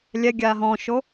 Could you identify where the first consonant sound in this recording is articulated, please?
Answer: alveolar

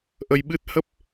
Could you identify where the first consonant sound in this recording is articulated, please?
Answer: glottal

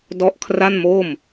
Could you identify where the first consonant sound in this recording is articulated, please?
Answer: alveolar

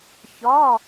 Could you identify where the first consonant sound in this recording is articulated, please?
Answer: palatal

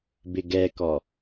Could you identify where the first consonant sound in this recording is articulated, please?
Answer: labial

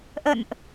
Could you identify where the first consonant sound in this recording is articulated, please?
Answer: glottal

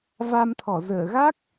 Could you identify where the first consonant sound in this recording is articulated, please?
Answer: labial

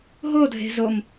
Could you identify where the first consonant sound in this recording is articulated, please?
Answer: glottal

